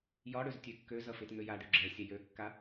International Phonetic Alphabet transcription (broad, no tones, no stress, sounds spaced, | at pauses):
j ɒ ɽ ø z tʲ ø kː ø z ʌ f ɪ t ŋ ø j a ɖ ø ɡ͡ǁ ɛ sʲ ɛ j ø kː a